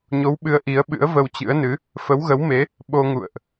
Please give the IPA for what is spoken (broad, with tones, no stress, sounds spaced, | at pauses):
ɲ o˨˦ w ɓ ɨ˨˦ ə̯ ʔ i˨˦ ə̯ ɓ ɨ̰˧˥ ə̯ v ə˧ w t͡ɕ ɨ̰˧˥ ə̯ n ɨ˨˦ | f ə˨˦ w ɣ ə˨˦ w m e˨˦ | ɓ o˧ ŋ ṵ˧˨ ə̯ ʔ